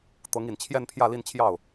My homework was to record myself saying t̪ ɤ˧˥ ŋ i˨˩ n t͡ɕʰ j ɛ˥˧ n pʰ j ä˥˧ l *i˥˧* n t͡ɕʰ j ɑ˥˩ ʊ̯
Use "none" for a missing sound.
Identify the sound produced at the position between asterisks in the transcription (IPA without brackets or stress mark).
i˥˧